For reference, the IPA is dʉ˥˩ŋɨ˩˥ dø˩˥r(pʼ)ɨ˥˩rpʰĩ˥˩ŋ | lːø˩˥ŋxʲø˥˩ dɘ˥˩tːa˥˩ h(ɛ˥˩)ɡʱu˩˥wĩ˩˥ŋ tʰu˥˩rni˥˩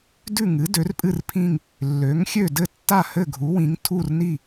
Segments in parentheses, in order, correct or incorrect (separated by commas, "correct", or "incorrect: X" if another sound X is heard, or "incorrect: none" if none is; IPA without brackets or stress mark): correct, incorrect: ɘ˥˩